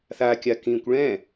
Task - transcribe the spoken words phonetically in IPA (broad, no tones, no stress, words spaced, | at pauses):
θakʲa kĩkʷ ɭɛ̃